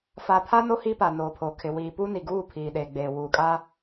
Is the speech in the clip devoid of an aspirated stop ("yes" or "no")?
no